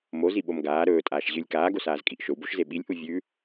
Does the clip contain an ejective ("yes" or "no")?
yes